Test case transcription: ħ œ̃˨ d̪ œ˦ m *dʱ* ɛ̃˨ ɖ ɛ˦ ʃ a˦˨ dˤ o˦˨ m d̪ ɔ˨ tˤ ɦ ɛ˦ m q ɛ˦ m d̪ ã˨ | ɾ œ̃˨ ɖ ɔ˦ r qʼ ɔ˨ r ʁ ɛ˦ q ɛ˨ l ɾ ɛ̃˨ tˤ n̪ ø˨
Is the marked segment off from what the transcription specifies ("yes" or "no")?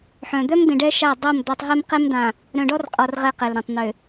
yes